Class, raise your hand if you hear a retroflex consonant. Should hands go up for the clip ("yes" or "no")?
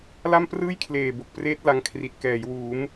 no